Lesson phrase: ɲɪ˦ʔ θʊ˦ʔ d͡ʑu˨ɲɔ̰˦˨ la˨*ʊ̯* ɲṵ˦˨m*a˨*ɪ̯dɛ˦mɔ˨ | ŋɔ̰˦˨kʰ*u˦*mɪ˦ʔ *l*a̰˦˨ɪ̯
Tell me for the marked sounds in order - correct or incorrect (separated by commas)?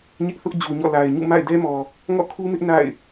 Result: incorrect, incorrect, correct, incorrect